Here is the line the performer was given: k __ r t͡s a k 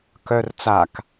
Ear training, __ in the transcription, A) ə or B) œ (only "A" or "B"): B